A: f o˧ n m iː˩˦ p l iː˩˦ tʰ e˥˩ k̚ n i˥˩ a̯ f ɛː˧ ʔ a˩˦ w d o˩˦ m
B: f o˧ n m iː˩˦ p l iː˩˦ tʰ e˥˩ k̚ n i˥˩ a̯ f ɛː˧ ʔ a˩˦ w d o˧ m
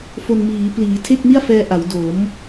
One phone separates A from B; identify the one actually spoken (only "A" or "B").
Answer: A